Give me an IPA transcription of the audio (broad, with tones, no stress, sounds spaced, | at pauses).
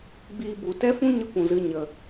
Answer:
ɡ͡b iː˧ b u˨ t ɛ˦ f ũ˦ ɲ ə˦ kʷ ũ˨ z ɨ˧ ɲ ə˨